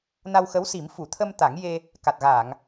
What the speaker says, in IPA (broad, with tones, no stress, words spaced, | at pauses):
na˧wxə˧˥wsi˨˩˦m fu˨˩˨t̪ʰə˧m t̪a˨˩˦ŋje˧ | ka˨˩t̚ɣaː˨˩˨ŋ